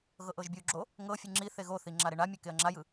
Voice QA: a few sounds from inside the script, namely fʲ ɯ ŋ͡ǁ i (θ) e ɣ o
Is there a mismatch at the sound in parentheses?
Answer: no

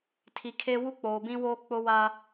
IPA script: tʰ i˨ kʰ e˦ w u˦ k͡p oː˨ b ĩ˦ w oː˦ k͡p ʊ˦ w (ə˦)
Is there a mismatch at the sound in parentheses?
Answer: yes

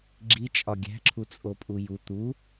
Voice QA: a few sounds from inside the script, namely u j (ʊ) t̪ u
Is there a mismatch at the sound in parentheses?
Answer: yes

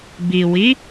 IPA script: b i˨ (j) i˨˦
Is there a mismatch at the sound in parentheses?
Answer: yes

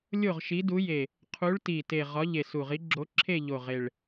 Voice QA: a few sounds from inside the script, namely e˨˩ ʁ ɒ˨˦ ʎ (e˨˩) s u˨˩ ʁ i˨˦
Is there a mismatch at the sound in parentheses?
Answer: no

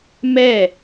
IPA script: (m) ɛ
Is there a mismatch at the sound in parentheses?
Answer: no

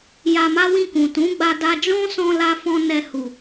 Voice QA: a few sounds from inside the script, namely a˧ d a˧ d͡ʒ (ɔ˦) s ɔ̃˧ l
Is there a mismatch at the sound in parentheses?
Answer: yes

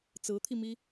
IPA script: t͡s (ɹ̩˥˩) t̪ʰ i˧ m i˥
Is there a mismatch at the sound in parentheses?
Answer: yes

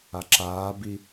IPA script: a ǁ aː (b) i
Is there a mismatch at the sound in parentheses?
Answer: no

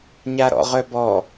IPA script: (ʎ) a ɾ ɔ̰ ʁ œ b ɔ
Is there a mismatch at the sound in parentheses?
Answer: yes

